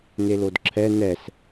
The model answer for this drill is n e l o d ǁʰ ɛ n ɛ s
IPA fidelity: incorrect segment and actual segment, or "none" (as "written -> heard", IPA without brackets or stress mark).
none